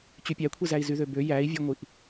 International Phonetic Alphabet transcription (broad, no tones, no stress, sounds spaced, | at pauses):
t͡ɕ y pʲ æ kʷʰ i z æ i̯ z y ð ø b ø j æ i̯ vʲ ø ŋʷ i ʔ